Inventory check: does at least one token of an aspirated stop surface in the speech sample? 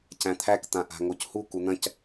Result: yes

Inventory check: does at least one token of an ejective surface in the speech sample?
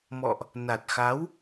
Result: no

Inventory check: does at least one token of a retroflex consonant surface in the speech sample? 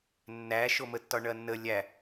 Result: yes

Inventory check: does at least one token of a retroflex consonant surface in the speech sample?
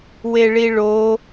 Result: yes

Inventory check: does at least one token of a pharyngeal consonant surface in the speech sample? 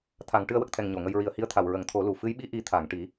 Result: no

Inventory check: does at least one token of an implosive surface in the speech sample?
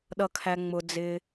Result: yes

